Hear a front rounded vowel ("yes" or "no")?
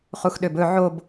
yes